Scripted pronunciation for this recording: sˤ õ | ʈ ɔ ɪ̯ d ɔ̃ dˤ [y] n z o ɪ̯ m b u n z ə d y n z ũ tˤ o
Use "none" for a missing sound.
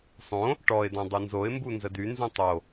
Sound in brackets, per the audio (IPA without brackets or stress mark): u